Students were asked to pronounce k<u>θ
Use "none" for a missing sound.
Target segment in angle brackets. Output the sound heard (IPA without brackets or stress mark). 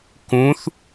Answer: ũ